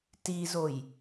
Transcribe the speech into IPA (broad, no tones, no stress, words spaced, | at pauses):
tizoj